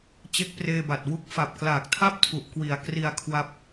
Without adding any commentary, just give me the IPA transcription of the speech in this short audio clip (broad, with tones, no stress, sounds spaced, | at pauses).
t͡ɕ e˦˥ k̚ p r eː˧ b a˨˩ t̚ w u˦˥ k̚ f a˨˩ p̚ k l aː˨˩ k̚ tʰ a˥˩ p̚ tʰ u˨˩ ʔ k w i˨˩ a̯ k r i˧ a̯ kʰ w a˦˥ p̚